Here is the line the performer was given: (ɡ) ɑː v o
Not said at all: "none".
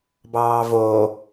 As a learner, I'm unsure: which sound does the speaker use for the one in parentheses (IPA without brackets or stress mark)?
b